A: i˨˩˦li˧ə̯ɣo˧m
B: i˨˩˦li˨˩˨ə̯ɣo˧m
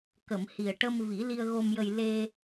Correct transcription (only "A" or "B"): A